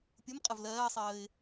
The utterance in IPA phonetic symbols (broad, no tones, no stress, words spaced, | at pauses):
pʲʊmqʼəv lɜːsˤəːɪ̯